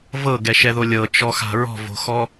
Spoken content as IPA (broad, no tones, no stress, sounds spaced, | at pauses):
v ɤ ɡ ɛ ʃ ɛ ð o lʲ ɤ t͡ʃ ɔ x a̤ ɹ ɔ̤ v o̤ x ɔ